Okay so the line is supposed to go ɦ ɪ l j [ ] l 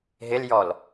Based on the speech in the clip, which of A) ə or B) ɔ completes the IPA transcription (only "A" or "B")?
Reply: B